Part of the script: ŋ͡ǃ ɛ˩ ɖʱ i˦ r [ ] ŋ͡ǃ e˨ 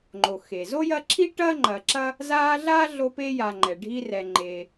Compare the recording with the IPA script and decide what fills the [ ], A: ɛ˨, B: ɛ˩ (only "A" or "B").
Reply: A